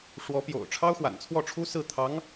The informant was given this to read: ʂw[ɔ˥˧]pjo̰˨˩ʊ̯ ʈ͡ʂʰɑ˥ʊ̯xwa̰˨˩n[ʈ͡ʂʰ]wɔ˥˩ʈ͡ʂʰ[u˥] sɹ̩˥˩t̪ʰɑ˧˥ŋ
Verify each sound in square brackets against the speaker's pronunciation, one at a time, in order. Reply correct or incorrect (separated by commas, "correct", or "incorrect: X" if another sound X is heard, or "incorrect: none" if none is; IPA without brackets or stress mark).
incorrect: ɔ˧˥, incorrect: t͡sʰ, correct